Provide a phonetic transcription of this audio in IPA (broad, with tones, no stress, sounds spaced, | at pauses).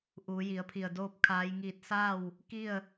ʔ uː˩˧ j i˩˧ ə̯ pʰ i˧˩ ə̯ d oː˥˨ p̚ kʰ aː˧˥ j ŋ iː˥˨ t̚ s aː˥˨ w | k i˥˨ ə̯